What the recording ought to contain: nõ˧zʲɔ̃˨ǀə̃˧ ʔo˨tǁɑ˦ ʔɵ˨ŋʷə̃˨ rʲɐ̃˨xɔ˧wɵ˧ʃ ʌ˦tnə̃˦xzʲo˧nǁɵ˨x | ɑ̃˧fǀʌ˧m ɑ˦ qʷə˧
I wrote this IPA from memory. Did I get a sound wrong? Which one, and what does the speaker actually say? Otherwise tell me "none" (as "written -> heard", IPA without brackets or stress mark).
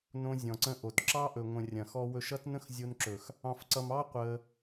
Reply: none